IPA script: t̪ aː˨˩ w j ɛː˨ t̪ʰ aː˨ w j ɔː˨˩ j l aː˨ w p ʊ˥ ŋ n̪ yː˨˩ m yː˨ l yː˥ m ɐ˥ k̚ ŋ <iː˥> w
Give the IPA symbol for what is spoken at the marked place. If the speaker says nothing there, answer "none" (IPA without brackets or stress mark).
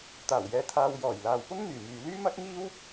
iː˥